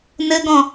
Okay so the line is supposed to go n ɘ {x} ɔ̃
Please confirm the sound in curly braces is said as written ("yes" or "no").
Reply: no